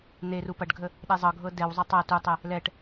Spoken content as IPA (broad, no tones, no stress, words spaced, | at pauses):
n̪eru pɐɖɡʱə | ɗezˤɤɡʱɤ dɛwzˤɛ tˤɐ tutˤɛ | lɛʈ